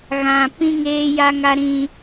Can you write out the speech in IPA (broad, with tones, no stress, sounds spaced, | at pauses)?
ɣ ã˨ p ĩ˦ ŋ eː˦ j a˦ ŋ a˦ ɾ ĩ˦